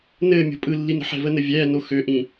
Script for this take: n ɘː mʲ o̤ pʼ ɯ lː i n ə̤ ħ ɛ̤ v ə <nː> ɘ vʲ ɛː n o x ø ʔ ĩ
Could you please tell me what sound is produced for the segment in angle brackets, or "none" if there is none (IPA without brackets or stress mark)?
n